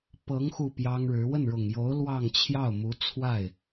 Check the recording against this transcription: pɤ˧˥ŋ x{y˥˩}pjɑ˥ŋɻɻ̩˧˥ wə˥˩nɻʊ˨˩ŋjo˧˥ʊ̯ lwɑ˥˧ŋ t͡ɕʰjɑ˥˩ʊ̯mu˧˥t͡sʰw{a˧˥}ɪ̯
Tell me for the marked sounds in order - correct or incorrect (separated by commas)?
incorrect, incorrect